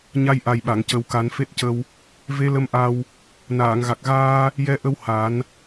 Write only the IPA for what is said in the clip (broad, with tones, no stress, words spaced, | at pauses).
ɲa˧jʔa˨˩jɓa˨˩˨ŋcə˨˩w ka˨˩˦nfe˦˥t̚cə˧w | ve˧˥lə˧mʔa˧w | naː˨˩˨ŋɣa˨˩k̚ɣaː˧ | jɛ˧˥ʔə˧w ha˨˩˦n